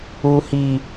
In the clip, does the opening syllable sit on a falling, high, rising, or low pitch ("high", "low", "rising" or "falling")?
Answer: low